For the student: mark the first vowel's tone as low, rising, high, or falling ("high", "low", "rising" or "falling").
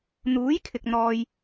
rising